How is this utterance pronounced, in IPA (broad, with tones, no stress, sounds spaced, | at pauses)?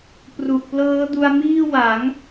p r u˨˩ ʔ p l ɤː˦˥ d u˧ a̯ m iː˥˩ w a˩˦ ŋ